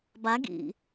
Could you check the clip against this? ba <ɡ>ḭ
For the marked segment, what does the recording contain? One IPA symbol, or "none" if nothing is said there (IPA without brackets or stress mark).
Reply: ɡ